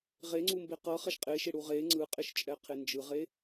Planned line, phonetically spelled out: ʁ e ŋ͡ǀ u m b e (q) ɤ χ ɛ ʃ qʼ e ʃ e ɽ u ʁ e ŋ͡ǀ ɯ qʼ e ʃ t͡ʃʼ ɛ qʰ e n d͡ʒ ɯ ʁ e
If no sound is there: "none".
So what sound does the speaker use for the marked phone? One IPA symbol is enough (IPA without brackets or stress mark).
q